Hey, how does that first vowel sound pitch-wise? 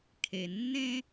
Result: low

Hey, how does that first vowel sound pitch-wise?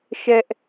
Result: high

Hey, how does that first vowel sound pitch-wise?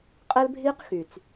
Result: high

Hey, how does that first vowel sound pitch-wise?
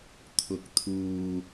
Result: low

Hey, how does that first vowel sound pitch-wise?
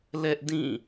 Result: high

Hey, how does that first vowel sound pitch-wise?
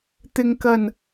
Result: low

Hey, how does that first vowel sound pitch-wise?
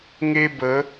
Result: high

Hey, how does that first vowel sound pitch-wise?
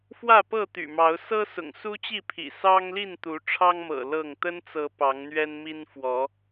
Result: falling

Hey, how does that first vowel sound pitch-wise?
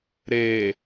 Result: low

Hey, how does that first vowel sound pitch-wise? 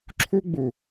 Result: high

